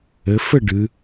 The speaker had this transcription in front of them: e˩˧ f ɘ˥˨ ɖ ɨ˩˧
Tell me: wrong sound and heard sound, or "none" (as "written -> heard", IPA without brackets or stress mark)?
e˩˧ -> ɘ˩˧